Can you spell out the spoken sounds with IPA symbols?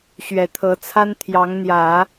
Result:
ɕɥɛ˨˩t̪ʰɤ˧˥t͡sʰa˥n t̪ʰjɑ˧˥ŋn̪jä˨˩˦

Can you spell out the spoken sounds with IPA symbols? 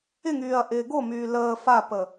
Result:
ɪŋyːɐ̯ ʔɪːɡomyː ləː fapə

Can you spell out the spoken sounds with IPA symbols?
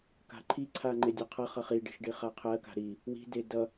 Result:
ka̤ǃʰiǀʰa ŋ͡ǃedʲʌqʰʌχʌ χiɖi̤ʃ ɖiχaqʰɜka̤ ɾi | wi̤de dʌ

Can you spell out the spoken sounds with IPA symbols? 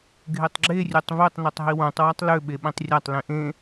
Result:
ɡʱetˤɡ͡ǁe rʲøtˤvøtˤ nøtˤɦiwõtˤ watˤlø ɓeɓĩtˤrʲatˤ lĩʔẽ

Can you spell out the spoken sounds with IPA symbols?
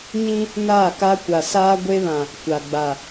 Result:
ɲĩ˦ | naː˦˨ka˦ kʷa˨saː˦ɡʷe˦βã˨ | kʷa˨ɡ͡ba˨

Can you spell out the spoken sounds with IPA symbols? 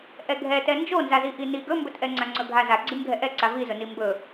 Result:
ʔɛɡʱɛ tɛnd͡ʒonzazi ʔini ɡɵmbɵtʔɛ ŋ͡ǀaŋ͡ǀɵɡʱaza ɡ͡ǀimɡʱɛʔɛǀa vizɵni mbɵ

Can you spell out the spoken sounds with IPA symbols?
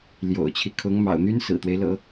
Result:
ljo̰˨˩ʊ̯t͡ɕʰi˦kʰʊ˧˥ŋ mɑ̰˨˩ʊ̯n̪y˥n sɹ̩˨˩t̪we˦ɪ̯ lɤ̰˨˩˦

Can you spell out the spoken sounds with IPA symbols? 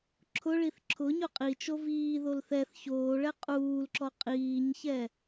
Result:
ǁʰʊɭiθ ǁʰʊ ɲʊqʼit͡ʃo viːðol θɛθ çoːɭɛ qʼuːlǁɔ qʼiːɲçɛ

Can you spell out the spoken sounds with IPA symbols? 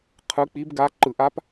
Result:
qʰɯ˧˥ k͡pi˧˥bɡa˧˥ ǃɯ˧˩˧ʔa˧˥p

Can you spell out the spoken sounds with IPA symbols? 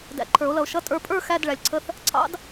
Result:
dæ̰˨ ǃʰə˞˨˩˦o̯lʌ˨o̯ʃʌ˧˥˧ tʼə˞˨pʼə˞˦˨ xæ˧˥˧d ɭæ˨lʲǀʰə˧˥˧θ | ǀʰɑ̰˧˥˧d

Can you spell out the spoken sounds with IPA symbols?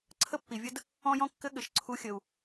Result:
ǀʰə˥pːi˩vʲə˥d | ɔ̃˥jɔ̃˥kːɘ˥ ɠɘ˩ʃǀʰu˧xʲə˩u̯

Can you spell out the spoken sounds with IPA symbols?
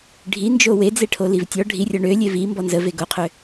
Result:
ɖʱind͡ʒo wed͡zeʈʰoliv tʲɔ ɖʱirʲɔ ɳølʲe vimbɔ nzəve ɡoqʰø

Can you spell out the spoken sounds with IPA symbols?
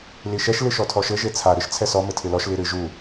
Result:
liʃɛʃ lɨʃɔtʰɔʃɘ ʒet͡sʰa ɾɨʃt͡sʰɛsɔ mɘtʰɨlɔʃ liɾɨ ʒu

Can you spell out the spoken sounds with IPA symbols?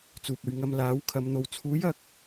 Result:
t͡suː˨p̚ ɵ˨ɥ ŋɐ˧m laː˨˥wkʰɐ˨˧m n̪o˨w t͡sʰuː˨˥jɐ˧k̚

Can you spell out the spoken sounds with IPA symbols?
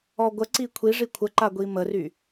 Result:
ɔɡʷəǀi kʷʰiʐi kʷʰəǃa ɡʷiməry

